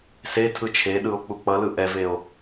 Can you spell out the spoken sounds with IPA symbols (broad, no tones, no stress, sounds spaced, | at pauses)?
s e tʰ ɯ t͡ʃʰ e ɗ ɯ o̯ k͡p u k͡p ʌ l ɯ ʔ ɛ v e o̯